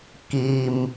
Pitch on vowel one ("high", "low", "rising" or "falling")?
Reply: low